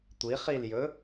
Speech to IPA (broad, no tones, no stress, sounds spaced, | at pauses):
tʷ i χ i l j ɵ